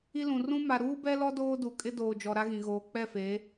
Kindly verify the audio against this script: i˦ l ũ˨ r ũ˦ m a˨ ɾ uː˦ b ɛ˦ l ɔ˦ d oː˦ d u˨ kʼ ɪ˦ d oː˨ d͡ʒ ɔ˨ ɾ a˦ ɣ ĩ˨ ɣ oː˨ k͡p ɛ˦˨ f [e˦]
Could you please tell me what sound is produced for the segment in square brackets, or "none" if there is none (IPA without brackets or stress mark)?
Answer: e˨˦